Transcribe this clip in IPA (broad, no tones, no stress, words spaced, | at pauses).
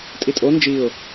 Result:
tʼitʼo nd͡ʒiʊ̯